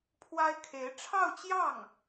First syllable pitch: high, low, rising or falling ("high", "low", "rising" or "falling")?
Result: high